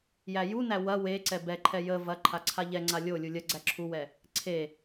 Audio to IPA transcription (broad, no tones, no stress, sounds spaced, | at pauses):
j æ j u n æ w ɐ w e ǀ ɛ b ɛ ǃʰ ɛ j ə v ɐ ǃʰ a ǀʰ a ʎ ɛ ŋ͡ǀ a lʲ o lʲ u lʲ ɐ ɡ͡ǀ æ ǁʰ u w ɛ | ǀʰ e